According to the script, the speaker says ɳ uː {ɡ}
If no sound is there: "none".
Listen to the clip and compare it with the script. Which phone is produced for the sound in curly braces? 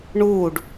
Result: ɖ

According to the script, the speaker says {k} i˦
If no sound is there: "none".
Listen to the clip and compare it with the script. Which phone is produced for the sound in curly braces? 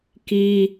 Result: k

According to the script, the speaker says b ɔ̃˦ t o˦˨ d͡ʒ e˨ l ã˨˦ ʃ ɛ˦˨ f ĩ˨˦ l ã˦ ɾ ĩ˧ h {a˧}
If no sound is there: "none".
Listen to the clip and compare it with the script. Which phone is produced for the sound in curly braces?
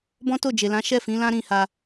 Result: a˧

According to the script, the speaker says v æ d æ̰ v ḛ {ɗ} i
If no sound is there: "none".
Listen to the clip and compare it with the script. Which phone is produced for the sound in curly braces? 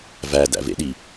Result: ɗ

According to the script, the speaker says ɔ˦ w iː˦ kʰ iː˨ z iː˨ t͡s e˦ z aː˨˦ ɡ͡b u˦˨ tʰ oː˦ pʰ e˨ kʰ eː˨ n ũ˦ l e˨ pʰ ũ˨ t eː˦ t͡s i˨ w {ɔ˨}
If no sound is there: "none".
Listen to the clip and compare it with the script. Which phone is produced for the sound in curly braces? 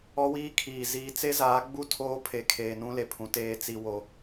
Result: o˨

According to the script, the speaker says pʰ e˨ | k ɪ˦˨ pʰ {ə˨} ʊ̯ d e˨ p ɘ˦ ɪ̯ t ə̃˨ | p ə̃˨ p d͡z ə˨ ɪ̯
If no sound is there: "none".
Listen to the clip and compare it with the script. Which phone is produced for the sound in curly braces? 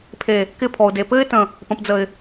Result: ɔ˨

